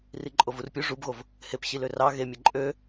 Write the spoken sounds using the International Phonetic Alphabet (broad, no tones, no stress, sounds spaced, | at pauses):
r i ǃʼ o v u r pʲ u ʐ u b ɣ o v | h e p ɕ i l ø r ɑ ɣ e mʲ e ǃʼ ø